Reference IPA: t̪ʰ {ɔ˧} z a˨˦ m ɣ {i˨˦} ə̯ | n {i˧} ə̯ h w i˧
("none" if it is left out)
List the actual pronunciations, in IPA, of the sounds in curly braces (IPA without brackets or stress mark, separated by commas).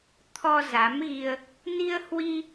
ɔ˧, i˧, i˧